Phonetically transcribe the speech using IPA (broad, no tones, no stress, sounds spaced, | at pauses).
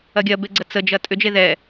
ɐ ɡʲ ɐ b e ɡ͡ǀ ə t͡s ə d͡ʒ ɐ tʼ ʏ d͡ʒ e ð ɛ